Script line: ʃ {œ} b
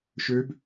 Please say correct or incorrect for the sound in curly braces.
incorrect